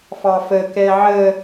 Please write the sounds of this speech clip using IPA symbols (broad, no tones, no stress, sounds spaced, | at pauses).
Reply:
f ɑ f ə k ɛ ʕ ə